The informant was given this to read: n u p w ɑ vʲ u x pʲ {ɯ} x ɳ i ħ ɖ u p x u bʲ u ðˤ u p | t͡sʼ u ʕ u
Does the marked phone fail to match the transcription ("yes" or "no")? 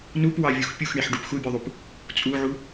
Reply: yes